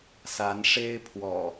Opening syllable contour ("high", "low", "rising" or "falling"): rising